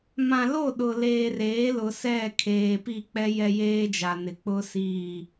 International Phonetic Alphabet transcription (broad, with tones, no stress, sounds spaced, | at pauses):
m ã˨ l o˦˨ ɗ ʊ˨ l eː˨ r eː˨˦ l ʊ˨ s ɛ˦˨ kʰ eː˨ p i˦˨ k͡p ɛ˦ j ɛ˦ j eː˦ d͡ʒ a˨ n ɪ˨ k͡p ʊ˦ s iː˦˨